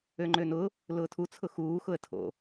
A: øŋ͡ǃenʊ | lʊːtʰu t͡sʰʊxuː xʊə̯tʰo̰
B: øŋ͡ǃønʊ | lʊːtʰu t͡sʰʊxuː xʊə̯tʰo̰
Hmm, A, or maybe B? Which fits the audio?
B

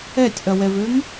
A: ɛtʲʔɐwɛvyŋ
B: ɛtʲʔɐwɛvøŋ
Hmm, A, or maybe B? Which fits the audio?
B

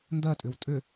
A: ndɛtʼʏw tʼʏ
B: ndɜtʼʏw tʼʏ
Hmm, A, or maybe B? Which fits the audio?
B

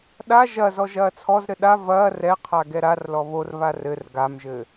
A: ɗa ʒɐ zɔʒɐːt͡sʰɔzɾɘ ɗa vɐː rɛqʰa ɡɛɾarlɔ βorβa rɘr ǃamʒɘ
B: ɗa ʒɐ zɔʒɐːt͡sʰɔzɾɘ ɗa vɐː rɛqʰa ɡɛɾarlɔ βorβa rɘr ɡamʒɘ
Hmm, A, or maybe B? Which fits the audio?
B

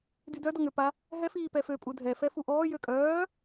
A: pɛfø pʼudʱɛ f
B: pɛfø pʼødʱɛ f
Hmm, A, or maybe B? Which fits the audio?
A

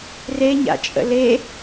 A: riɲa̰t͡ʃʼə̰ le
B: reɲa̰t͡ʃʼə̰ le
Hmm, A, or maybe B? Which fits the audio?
B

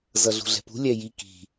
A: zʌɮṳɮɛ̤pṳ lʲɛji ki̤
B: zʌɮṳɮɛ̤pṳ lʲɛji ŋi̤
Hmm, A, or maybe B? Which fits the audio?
A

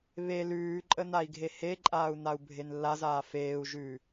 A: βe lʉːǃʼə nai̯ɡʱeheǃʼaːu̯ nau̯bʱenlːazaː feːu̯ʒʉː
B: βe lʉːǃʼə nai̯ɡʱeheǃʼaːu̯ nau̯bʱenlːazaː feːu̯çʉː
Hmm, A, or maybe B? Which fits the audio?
A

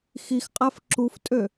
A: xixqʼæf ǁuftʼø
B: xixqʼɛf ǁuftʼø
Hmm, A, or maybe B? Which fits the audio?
A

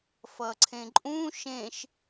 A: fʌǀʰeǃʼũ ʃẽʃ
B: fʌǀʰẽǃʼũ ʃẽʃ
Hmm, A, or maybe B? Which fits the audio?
B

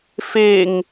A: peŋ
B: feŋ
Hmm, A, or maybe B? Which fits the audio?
B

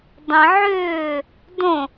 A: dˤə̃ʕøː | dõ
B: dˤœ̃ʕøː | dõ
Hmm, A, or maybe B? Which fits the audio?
A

